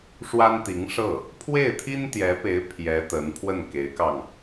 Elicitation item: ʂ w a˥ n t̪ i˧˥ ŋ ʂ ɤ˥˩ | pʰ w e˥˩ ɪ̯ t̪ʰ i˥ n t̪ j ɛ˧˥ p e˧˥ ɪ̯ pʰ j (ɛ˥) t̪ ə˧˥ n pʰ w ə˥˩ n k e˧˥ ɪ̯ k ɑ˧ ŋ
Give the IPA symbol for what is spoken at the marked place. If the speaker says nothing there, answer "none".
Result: ɛ˧˥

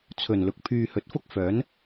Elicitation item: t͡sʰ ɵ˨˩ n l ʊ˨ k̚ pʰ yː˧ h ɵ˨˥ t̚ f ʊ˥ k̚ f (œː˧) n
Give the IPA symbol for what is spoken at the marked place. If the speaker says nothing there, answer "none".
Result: œː˨˥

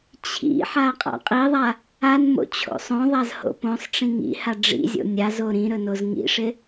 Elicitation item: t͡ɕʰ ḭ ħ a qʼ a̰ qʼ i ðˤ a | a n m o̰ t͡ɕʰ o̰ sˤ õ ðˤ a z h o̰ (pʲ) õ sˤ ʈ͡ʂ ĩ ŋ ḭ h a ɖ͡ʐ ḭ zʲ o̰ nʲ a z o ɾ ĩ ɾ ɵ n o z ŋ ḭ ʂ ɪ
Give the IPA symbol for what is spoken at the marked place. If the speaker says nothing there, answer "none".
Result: p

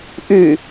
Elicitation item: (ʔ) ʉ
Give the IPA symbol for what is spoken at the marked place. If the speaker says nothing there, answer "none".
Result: ʔ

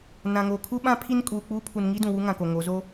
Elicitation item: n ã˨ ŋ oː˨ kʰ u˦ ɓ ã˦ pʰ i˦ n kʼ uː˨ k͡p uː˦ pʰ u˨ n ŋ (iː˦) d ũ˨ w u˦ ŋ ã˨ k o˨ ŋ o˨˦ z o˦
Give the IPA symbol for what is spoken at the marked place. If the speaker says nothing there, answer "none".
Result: i˦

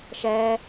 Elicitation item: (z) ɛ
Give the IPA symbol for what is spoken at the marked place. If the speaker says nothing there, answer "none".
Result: ʃ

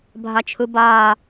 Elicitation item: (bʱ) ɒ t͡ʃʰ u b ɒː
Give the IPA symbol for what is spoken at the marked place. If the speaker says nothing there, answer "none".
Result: bʱ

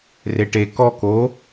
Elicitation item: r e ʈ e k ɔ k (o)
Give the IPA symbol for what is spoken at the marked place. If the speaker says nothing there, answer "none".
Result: o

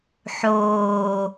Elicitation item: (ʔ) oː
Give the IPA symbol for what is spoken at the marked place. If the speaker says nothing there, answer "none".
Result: ħ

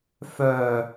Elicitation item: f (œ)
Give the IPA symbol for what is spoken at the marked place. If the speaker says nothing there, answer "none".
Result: œ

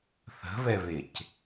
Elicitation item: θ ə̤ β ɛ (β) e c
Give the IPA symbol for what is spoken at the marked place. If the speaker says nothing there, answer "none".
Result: β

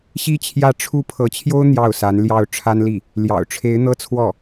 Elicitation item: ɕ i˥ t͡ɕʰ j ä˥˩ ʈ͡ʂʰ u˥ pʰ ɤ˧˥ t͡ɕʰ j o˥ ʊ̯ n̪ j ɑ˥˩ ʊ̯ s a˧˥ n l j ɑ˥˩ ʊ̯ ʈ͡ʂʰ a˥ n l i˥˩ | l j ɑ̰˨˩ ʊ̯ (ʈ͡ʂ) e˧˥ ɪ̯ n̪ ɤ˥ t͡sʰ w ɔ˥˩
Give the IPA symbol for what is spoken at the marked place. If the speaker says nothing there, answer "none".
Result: ʈ͡ʂʰ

